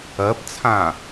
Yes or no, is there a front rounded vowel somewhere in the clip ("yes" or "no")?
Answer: no